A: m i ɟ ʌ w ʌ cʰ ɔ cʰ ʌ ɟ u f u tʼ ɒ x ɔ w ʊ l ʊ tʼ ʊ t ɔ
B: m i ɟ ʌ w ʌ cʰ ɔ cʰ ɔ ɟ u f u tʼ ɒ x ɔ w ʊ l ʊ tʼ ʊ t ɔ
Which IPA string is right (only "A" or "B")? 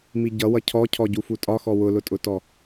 B